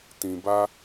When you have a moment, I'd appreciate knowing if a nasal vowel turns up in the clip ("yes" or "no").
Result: yes